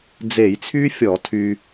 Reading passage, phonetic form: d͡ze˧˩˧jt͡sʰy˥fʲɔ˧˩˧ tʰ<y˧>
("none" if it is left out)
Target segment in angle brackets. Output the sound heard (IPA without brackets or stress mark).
y˧